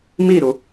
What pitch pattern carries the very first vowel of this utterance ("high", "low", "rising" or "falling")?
falling